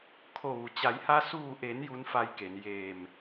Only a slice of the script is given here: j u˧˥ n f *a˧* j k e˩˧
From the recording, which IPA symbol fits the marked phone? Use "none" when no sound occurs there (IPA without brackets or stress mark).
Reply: a˧